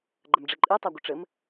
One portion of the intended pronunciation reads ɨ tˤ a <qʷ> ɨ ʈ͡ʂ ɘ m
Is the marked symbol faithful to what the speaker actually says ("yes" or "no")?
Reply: no